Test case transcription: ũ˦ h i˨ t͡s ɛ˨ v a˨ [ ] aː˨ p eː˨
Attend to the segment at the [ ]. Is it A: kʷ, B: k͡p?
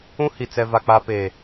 B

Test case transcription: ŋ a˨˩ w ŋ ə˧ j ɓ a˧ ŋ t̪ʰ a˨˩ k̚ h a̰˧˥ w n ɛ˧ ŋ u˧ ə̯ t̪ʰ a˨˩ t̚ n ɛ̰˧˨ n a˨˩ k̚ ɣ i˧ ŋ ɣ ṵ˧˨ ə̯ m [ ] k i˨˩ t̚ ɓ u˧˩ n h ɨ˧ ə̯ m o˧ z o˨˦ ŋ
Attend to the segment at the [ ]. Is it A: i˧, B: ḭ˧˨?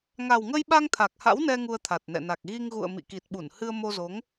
B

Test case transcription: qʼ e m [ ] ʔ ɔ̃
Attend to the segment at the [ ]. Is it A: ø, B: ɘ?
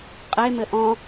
B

